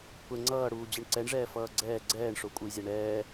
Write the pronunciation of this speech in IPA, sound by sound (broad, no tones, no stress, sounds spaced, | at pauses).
kʷʰ ɛ ŋ͡ǀ ʌː ɽ uː d͡ʑ ɯ ɳ ǀ ɛ ɳ ʐ ɛː f ʌː ɡ͡ǀ ɛː ɡ͡ǀ ɛː ɳ ʂ o kʷʼ ɯ j zʲ a ɳ ɛː